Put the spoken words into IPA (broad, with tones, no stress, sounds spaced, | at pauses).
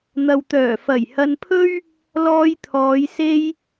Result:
n̪ ɐ˨ w t̪ œː˨˩ f ɐ˨˩ j h ɐ˧ n pʰ ɵ˥ ɥ | l ɔː˧ j t̪ʰ ɔː˨˧ j s e˧ j